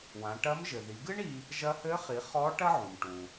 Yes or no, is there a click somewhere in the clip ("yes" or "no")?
no